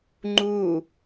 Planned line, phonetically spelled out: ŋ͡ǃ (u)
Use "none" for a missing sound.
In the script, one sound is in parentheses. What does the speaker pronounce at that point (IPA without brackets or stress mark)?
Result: u